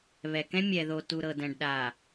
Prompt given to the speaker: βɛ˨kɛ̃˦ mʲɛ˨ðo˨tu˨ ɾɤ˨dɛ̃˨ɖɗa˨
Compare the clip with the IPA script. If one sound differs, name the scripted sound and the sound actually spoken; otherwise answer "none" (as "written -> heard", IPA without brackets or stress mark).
none